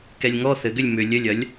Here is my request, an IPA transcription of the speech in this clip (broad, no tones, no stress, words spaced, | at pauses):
kɛlʲŋɔ θɘɡʏlʲ mʏ lʲɘlʲɐlʲ